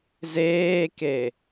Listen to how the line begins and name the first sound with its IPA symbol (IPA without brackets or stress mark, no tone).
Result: z